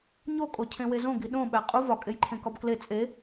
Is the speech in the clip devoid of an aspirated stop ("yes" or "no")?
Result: no